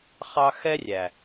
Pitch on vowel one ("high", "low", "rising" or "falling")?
high